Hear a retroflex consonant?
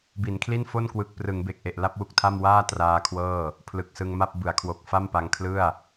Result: no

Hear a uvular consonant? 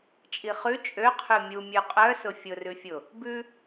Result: yes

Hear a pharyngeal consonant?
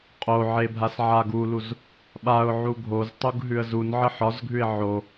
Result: yes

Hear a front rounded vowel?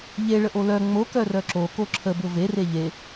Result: yes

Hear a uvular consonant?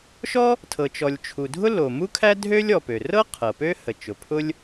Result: yes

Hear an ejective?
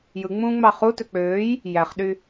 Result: no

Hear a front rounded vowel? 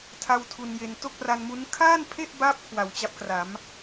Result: no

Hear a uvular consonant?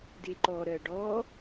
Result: no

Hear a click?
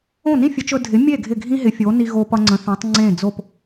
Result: yes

